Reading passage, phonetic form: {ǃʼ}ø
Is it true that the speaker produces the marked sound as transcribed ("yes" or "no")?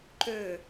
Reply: no